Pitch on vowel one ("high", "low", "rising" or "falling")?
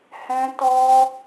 high